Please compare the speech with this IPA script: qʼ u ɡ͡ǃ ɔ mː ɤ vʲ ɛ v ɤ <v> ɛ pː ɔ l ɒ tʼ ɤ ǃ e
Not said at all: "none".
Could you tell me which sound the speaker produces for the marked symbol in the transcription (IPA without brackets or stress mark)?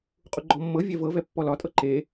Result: v